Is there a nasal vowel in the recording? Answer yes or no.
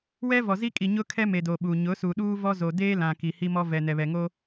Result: yes